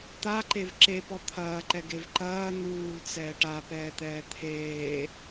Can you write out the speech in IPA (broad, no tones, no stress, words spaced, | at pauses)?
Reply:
t̪aǃev ǁepɔ t̪ʰɐːǃɛɡev ǃɐː n̪uːlt͡sɛːʈ apɛːt̪ɛː t̪ʰeː